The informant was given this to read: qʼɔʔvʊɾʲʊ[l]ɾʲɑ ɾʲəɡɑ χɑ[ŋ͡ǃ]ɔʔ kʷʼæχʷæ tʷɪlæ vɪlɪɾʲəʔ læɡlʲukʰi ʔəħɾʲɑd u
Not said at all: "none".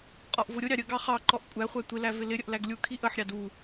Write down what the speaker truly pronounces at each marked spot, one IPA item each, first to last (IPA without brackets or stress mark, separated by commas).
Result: none, ǃ